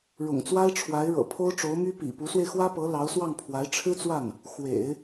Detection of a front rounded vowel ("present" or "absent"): present